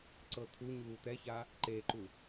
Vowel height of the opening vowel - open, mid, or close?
mid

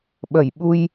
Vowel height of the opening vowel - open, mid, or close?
mid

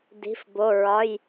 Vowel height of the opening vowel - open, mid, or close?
close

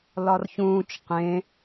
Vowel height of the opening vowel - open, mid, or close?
open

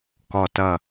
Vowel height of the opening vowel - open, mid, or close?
mid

